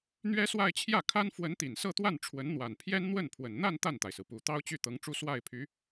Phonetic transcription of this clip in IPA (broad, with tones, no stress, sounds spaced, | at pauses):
n̪ ɥ ɛ˥ s w a˥˧ ɪ̯ t͡ɕʰ j ä˥˩ kʰ a˥ n f w ə˧˥ n t̪ i˨˩ n s ɤ˥˧ t̪ w a˥˩ n ʈ͡ʂʰ w ə˧˥ n n̪ w a˨˩ n pʰ j ɛ˥ n n̪ w ə˥˩ n pʰ w ə˨˩ n n̪ a˥˧ n t̪ a˥˩ n t̪ a˩ ɪ̯ s ɹ̩˩ p u˨˩ t̪ ɑ˥ ʊ̯ t͡ɕ y˥˩ t̪ ɤ˧˥ ŋ ʈ͡ʂ u˥˧ s w a˥˩ ɪ̯ pʰ y˧˥